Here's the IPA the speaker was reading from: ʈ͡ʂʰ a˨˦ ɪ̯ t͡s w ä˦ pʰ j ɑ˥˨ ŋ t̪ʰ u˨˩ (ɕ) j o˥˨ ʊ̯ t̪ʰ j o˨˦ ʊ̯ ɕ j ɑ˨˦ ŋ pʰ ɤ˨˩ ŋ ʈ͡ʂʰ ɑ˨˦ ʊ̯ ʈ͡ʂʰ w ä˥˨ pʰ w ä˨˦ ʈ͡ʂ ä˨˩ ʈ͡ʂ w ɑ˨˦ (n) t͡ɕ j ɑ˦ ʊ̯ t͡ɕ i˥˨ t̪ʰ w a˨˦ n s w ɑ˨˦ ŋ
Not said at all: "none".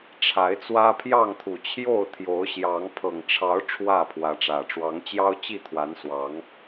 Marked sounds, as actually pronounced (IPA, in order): t͡ɕʰ, ŋ

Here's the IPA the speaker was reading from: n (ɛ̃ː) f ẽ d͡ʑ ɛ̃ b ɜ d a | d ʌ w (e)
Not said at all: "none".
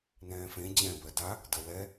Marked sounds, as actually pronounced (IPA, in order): ɛ̃ː, ɛ

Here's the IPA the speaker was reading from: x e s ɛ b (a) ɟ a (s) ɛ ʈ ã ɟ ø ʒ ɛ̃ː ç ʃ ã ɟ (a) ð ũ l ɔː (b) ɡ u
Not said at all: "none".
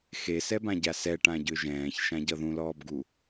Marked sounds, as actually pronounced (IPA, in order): ã, s, ʌ, b

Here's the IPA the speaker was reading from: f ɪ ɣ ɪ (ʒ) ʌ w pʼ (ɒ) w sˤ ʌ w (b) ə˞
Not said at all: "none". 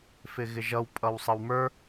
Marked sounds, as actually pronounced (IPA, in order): ʒ, ʌ, m

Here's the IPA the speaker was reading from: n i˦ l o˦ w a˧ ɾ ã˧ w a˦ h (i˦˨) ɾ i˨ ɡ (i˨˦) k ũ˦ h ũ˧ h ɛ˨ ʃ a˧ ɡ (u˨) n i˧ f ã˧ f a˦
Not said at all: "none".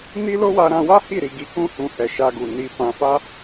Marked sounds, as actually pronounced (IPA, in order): i˦˨, i˨˦, u˨

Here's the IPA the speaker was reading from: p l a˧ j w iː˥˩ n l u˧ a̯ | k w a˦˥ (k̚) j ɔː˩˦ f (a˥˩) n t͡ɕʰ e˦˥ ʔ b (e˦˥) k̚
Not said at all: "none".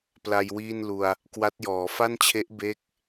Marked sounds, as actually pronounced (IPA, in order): t̚, a˥˩, e˦˥

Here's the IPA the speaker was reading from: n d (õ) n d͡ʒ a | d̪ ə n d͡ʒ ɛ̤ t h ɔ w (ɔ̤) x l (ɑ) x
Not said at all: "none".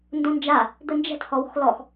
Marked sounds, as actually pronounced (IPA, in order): õ, ɔ̤, ɔ

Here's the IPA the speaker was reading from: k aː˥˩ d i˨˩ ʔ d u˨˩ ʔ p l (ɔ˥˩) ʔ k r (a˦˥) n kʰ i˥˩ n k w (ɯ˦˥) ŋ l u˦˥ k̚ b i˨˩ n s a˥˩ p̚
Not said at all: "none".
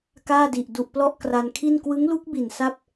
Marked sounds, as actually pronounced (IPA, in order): ɔ˥˩, a˧, ɯ˦˥

